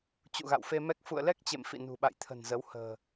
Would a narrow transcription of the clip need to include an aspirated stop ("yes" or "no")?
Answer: yes